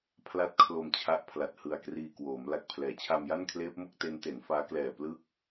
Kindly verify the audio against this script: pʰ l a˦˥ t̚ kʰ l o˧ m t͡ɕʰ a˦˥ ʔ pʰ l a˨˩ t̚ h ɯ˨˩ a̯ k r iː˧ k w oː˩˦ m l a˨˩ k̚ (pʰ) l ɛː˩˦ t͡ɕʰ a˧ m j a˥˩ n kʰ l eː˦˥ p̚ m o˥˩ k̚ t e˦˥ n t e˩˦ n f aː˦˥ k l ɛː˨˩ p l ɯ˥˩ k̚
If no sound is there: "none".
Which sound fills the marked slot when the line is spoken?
pʰ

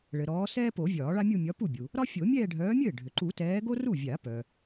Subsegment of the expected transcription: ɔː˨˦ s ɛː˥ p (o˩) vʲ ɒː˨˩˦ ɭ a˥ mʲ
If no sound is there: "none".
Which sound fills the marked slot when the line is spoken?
o˨˩˦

